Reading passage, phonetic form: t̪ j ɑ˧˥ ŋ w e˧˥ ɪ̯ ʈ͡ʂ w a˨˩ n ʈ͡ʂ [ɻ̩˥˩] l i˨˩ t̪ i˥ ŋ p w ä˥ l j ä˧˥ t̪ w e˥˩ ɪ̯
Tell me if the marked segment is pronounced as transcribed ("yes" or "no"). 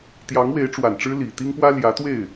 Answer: no